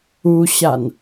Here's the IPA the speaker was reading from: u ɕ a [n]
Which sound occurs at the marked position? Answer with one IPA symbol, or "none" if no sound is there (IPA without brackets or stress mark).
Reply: n